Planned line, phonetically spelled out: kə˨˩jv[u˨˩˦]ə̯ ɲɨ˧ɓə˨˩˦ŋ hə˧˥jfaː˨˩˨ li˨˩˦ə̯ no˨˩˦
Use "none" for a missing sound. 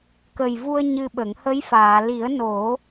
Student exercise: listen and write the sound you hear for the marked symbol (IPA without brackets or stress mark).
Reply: u˧